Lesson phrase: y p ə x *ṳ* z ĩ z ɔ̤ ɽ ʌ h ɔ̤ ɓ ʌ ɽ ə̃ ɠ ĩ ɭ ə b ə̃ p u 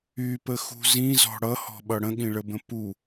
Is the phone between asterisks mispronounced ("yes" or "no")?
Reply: no